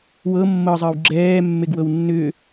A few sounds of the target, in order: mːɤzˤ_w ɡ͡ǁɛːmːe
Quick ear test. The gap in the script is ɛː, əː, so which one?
əː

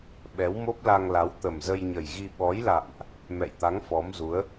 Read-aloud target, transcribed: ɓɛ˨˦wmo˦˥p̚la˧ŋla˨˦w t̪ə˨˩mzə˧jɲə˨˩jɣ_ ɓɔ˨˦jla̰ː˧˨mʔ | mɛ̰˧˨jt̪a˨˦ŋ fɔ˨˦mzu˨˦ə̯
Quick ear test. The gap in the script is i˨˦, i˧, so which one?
i˧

